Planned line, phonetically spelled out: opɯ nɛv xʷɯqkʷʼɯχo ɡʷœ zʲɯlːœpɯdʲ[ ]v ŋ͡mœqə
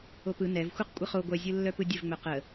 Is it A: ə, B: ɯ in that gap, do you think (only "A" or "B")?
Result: A